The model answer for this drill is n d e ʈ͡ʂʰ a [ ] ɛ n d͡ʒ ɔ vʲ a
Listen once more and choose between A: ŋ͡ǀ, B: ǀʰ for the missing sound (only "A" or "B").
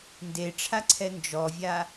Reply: B